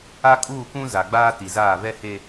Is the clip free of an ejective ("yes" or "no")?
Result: no